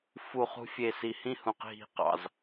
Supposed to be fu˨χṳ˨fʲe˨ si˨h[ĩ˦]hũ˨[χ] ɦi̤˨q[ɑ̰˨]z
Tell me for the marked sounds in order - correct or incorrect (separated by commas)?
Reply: incorrect, incorrect, correct